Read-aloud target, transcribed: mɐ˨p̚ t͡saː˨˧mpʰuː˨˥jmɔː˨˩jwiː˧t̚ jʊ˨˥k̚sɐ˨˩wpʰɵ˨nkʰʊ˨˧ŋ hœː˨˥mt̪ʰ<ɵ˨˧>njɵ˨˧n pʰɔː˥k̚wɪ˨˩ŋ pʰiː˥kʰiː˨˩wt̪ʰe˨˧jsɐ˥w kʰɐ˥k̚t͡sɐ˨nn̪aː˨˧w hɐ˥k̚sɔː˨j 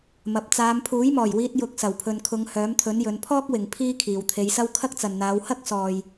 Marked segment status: incorrect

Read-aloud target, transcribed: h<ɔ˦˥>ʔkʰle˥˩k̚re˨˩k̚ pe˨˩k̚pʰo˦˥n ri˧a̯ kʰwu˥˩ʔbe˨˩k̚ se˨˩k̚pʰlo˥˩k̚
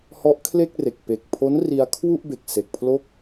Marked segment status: correct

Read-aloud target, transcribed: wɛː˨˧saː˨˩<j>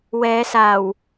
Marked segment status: incorrect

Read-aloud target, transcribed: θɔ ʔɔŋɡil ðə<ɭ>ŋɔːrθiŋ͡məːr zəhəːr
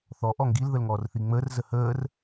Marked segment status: incorrect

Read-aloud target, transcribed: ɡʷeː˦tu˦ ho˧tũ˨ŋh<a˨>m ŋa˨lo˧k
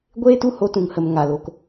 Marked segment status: incorrect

